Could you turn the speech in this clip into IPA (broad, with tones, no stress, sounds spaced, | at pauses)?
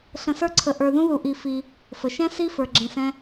ɬ ə̃˧ s ə˞˦ ǀʰ ə˧ ʔ ə˞˧ ð ũ˦ ð u˧ ʔ i˧ f i˧ | f ə˨ ʃ ɛ̃˦ s i˦ f ə˞˧ ɡ͡ǁ ɛ̃˧ s ɛ̃˦